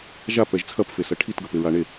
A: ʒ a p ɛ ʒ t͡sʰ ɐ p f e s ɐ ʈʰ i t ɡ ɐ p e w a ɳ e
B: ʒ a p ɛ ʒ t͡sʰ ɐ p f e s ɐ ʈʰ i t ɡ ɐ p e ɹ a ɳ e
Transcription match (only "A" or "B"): B